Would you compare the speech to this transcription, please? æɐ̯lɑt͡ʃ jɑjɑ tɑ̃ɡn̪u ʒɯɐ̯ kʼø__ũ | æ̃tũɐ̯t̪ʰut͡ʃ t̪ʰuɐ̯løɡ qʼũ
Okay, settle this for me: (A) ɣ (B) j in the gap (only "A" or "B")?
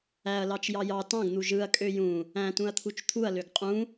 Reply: B